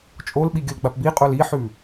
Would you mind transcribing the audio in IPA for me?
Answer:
t͡ʃʼolɓi ɡʲɵlɡ͡bapbiqʼol iħʉ

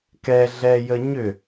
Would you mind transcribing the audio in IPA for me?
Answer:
kɛɮɛjə ɲʏ

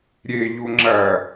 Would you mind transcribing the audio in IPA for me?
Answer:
ɾʲeʎu ŋ͡ǁɐ

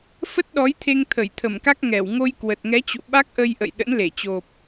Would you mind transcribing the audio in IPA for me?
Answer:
fə˦˥t̚ɗɔ˨˦jt̪ʰe˧ŋ t̪ʰə˧˩jt̪ʰə˧˩mka˦˥k̚ ŋɛ˧˩w ŋo˧jkwə˨˩t̚ŋɛ˨˦t͡ɕṵ˧˨ ɓa˦˥k̚ʔə˧j ʔə̰˧˨jɗə̰˧˥nle˧˩ t͡ɕo˨˩p̚

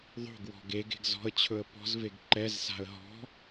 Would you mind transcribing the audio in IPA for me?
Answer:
ðˤo̤ɡ wɔ̤ɡeɡe̤ɡ zɔ̤ə̯t͡ɕʰɵə̯ pɔ̤zveɡ ǃɛzsa̤ə̯ ɦɔ̤

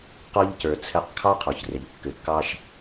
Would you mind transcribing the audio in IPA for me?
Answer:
qɔ˧ʎ cə˞˨t͡sʰɛ˧qkʰɑ˦ qʰɔ˨çre˨ʎ kːɘ˨kːɑ˦ʃ

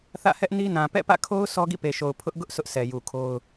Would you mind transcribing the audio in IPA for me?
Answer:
θä̰˦˨hɛ˦ʔni˦nã˨ pɛ̰˦˨pä̰˦˨kʰo˦ʊ̯ sʰɔ˦ɡḭ˦˨pe˨ʃo˨ʊ̯ pʰʊ˦ʔ ɡʊ˦ʔ sʰʊ˦ʔsʰɛ˨ju˨kʰo˦ʊ̯

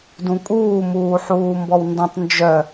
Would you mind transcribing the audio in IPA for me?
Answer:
dũkʼuːmuːħuː mbɔwndɔ̃tˤ nd͡ʒœ

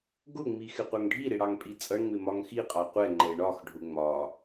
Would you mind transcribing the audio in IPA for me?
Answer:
ɡʊŋ͡mi xɪqʷʌŋɖʱiɾɪ ɽɑŋpʼit͡sʼʌɳŋ͡mɪ mɒŋxiqʼɑ qʷɛŋ͡ǃɛ ɳɒxɖʱʊ ŋ͡mɒ

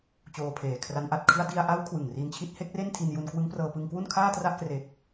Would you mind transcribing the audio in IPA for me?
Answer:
t͡ɕoː˧pʰeː˨˩kʰra˦˥nʔa˨˩t̚ kʰɯ˥˩a̯ di˧a̯ʔa˦˥w kʰwɯ˨˩ŋri˧nt͡ɕʰi˦˥t̚ he˦˥k̚re˥˩ntʰi˧nju˧n kwɯ˦˥ŋprɤː˧pɯ˧ŋ kwu˥˩nkʰaː˥˩tra˥˩ʔkre˨˩k̚

